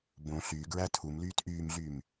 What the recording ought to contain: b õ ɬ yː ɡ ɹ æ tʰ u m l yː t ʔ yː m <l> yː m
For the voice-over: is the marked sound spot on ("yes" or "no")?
no